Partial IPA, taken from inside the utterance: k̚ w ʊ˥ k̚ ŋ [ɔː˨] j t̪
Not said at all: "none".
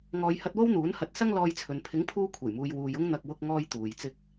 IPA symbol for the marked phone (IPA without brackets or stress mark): ɔː˥